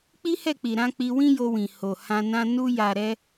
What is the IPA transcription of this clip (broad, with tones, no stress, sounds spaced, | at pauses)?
k͡p i˦ h ɛ˦˨ k͡p i˨ ɾ ã˧ k͡p i˧ w ĩ˦ j o˧ w ĩ˨ h o˨ h ã˧ n ã˦ n u˧ j a˨ ɾ ɛ˧